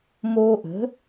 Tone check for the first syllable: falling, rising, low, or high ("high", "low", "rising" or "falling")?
high